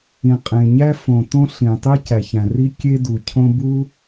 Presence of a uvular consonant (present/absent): present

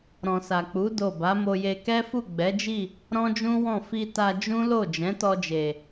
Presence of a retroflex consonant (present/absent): absent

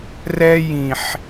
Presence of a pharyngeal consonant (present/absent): present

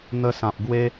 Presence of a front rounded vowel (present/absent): absent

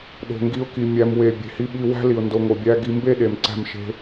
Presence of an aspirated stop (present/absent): absent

